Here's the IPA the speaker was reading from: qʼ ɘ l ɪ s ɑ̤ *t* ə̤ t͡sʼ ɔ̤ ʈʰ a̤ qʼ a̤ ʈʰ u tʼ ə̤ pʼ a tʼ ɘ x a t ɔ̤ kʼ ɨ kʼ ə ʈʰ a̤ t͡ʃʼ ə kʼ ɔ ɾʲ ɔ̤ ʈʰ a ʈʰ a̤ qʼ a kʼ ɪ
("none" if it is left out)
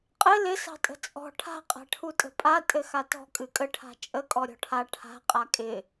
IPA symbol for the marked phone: tʼ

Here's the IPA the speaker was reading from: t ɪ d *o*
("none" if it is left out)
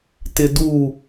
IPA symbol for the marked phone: u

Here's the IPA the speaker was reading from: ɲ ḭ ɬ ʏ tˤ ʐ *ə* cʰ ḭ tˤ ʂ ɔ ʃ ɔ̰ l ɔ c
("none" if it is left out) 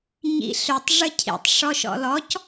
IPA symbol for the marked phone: ə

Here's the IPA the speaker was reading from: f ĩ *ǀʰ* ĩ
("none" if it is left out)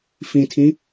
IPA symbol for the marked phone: tʰ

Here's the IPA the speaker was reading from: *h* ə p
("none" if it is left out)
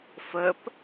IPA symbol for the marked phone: f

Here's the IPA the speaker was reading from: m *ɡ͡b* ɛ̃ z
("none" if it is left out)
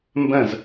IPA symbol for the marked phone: b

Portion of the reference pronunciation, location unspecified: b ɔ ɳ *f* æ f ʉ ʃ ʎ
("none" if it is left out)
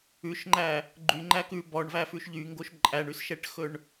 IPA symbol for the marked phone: v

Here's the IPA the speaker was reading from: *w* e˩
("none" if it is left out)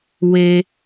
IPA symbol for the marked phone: w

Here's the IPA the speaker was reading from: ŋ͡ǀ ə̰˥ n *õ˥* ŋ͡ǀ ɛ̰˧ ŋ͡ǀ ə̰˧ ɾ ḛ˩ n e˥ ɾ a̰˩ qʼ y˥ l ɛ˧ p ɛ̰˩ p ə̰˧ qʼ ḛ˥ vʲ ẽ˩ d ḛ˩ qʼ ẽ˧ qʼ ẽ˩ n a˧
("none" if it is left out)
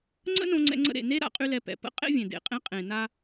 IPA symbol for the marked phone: õ˧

